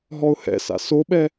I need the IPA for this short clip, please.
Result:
ɦ ɔ ʊ̯ h ɛ̰ s a̰ s o ɓ ɛ

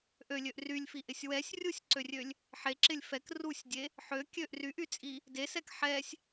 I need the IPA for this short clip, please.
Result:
ʔ ø lʲ ø ʔ r y lʲ f i ʔ ɪ sʲ w ɛ sʲ rʲ u sʲ ǀ ø rʲ ø lʲ | ħ e ǁ ɪ lʲ f ɛ k r u sʲ dʲ e | ħ ø kʲ ø ʔ r y ʔ y t͡sʼ i | d e s ɛ k ħ ɛ sʲ

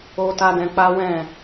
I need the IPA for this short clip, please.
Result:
o˦ t a˦ d ɛ̃˧ k͡p a˦ w ɛ̃˦˨

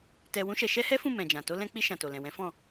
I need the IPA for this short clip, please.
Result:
t ɛ˧ w ũ˦ ʃ ɛ˧ ʃ ɛ˦ h ɛ˦ f ũ˦˨ m ɛ̃˨ d͡ʒ ã˨ t o˧ l ɛ̃˧ k͡p i˧ ʃ ã˨ t o˨ l ɛ̃˨ w ɛ̃˨˦ f ɔ̃˦˨

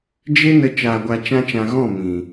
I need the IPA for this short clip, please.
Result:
d͡ʒ e˦ n ə˧ t͡ʃ aː˧ ɡʷ a˧ t͡ʃ ã˦ t͡ʃ ã˧ ɣ ɔ̃˦˨ m ĩ˨

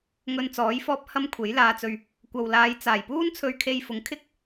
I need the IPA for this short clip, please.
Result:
ŋ ɵ˧ n t͡s ɔː˨˥ j f ɔː˥ p̚ h ɐ˥ m kʷʰ e˨˥ j l aː˧ t͡s ɵ˧ ɥ | kʷ ɐ˨ w l aː˨˧ j t͡s aː˨˩ j p uː˥ n t͡sʰ ɵ˧ ɥ kʰ e˧ j f ʊ˨˥ ŋ kʰ ɪ˥ k̚

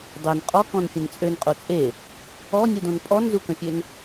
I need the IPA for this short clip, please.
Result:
dˤ ø n qʼ ɔ k ɔ̃ n fʲ ə̃ n t͡sʼ ø n qʼ o t͡sʼ e | ɔ nʲ u d õ n pʼ ɔ n z u k ə̃ fʲ ø n

